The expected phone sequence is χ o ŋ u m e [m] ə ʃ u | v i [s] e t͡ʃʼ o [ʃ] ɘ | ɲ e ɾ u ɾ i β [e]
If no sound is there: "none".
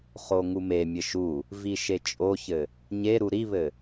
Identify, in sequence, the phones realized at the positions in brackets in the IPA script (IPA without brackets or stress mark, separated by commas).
mʲ, ʃ, ç, ɘ